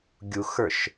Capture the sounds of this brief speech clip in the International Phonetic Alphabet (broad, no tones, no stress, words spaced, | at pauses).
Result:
ɡʲuxə˞ʃ